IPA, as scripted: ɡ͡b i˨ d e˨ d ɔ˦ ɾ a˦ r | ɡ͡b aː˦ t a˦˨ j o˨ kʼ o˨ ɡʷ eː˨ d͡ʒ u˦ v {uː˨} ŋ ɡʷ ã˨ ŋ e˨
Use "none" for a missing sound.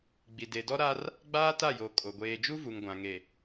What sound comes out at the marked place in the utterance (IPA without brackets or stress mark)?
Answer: u˨